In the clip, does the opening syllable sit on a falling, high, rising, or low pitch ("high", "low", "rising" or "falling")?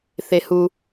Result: high